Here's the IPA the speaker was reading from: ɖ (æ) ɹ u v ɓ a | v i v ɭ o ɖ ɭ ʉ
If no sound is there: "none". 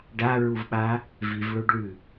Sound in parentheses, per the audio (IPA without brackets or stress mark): a